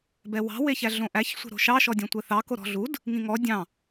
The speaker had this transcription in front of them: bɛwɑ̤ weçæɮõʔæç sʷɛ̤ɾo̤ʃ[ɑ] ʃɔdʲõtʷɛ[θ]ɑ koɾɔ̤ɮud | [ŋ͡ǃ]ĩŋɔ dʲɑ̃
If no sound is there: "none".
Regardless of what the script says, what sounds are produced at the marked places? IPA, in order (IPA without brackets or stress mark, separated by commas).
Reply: ɑ, θ, ŋ